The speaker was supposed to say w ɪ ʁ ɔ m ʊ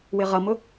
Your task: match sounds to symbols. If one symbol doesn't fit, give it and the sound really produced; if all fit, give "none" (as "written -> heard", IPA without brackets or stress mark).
ɔ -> ʌ